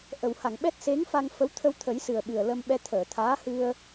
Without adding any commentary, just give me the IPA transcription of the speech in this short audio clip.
ʔ ə˨˩˨ w h a˨˩˨ ŋ ɓ ɛ˦˥ t̚ s e˧˥ ŋ f a˧ ŋ f ə˧˥ w t̪ʰ ə˧ w t̪ʰ ə˨˩˦ j s ɨ˨˩ ə̯ ɓ ɨ˨˩ ə̯ l ə˧ m ɓ ɛ˧ t̪ʰ əː˨˩˨ t̪ʰ aː˧˥ h ɨ˧ ə̯

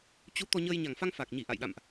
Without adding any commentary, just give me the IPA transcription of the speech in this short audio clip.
t͡ɕ u˨˦ t̪ ɔ˧ ɲ əː˧ j ɲ a˨˩ ŋ f a˧ ŋ f a˨˩ k̚ ɲ i˧˩ ʔ a̰˧˨ j ɗ a̰˧˨ m ʔ

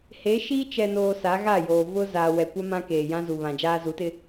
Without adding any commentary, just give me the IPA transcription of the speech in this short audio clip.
h e˨˦ ʃ iː˦ t͡ʃ ɛ˨ n oː˨ s a˨˦ ɣ a˦˨ j oː˨ v ʊ˦ z aː˨ w ɛ˨ kʷ a˦ m ã˦ k eː˨ j ã˦ z u˨ β ã˨ d͡ʒ aː˦ z u˨˦ t ɪ˦

